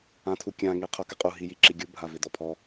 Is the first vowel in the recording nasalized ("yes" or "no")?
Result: yes